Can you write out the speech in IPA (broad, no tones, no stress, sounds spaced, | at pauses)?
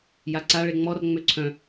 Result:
j a ǀ a ɭ e ŋ͡m ɔ r ŋ͡m ø ǀʰ œ̃